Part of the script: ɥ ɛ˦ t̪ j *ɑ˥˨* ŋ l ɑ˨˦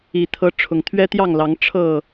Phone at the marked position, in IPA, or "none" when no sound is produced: ɑ˥˨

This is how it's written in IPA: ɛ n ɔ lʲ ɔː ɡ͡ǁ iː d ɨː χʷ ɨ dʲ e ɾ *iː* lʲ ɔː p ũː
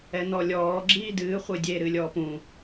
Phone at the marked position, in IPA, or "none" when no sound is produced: ɨː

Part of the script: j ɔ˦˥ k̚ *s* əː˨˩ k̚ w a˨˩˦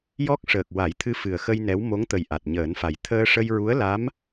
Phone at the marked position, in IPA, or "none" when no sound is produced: ʂ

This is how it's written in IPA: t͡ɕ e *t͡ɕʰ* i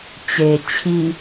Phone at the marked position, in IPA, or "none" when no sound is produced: t͡ɕʰ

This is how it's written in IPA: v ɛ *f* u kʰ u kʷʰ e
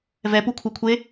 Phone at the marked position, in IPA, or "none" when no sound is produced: p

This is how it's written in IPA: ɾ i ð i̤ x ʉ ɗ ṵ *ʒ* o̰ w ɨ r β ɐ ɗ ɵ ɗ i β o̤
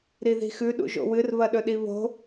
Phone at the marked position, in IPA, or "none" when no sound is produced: ʒ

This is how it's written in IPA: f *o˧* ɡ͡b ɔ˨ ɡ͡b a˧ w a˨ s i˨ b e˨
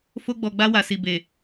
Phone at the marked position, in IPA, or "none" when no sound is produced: o˧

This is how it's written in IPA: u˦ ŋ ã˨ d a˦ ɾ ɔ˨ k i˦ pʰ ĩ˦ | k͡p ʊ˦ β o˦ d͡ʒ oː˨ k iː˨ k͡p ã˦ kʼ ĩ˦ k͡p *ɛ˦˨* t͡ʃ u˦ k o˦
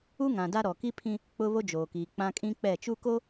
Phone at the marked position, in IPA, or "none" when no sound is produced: ɛ˦˨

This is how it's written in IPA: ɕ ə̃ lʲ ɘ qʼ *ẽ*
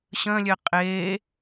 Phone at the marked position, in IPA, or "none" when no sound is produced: e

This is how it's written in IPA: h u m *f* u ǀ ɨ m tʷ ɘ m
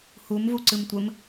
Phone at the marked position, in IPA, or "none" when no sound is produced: v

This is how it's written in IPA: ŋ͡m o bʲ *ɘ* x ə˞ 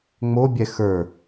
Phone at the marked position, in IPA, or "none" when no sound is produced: ɛ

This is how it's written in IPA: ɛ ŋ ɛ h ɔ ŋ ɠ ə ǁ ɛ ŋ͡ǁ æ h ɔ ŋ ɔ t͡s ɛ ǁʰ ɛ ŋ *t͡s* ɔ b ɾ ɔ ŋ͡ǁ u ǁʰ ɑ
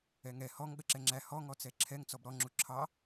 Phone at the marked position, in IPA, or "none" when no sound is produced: t͡s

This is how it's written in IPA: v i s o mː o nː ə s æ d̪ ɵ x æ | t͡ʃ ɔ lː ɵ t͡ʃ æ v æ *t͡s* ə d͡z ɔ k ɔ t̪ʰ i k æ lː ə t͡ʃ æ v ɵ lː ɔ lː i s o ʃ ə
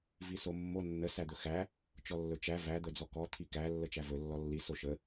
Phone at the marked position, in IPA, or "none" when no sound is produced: d̪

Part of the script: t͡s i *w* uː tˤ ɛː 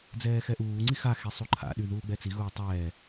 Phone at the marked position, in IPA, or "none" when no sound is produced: ɣ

